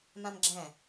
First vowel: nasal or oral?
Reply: nasal